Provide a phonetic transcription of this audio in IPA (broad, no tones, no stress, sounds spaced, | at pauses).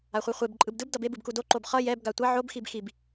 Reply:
a χʷ ɯ χʷ e b ǃʼ ɯ b d ɯ b d ʌ b e b ɯ b k u d o ǃ o b χ ʌ j ɛ b ɡ a tʷ ʌ ʕ o b x i b x i b